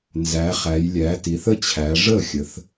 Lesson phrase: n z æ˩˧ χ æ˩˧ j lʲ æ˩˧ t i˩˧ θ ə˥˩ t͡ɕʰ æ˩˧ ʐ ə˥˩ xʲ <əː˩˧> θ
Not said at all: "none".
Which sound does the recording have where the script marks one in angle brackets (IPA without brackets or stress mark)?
ə˩˧